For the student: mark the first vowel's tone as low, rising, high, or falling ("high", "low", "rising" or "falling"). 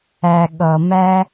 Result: low